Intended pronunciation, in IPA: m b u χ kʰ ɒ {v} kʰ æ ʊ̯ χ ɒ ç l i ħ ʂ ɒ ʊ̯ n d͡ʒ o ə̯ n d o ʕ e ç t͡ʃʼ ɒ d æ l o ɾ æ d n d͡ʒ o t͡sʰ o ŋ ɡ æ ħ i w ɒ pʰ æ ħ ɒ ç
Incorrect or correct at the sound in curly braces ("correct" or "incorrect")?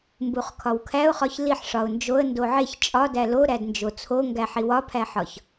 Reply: incorrect